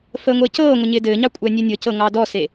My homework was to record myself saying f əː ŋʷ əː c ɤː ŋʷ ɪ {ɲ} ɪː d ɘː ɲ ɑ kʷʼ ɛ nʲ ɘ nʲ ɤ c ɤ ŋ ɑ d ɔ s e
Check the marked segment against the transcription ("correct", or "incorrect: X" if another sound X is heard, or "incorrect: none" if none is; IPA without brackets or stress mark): correct